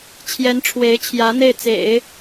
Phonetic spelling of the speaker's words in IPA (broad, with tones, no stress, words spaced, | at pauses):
t͡ɕʰjɛ˧˥nʈ͡ʂʰwe˧˥ɪ̯t͡ɕʰjä˧˥ n̪e˥˩ɪ̯t͡sḛ˨˩˦ɪ̯